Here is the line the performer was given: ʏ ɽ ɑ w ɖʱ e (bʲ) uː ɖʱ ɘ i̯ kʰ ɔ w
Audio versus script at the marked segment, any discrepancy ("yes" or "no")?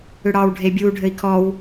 no